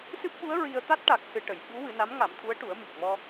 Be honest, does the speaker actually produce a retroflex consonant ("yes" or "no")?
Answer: yes